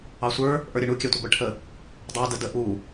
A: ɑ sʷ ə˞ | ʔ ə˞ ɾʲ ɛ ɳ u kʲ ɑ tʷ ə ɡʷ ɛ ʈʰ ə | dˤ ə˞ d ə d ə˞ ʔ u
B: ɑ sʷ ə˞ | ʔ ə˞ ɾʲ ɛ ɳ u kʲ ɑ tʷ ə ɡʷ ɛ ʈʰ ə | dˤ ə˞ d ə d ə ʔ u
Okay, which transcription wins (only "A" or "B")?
B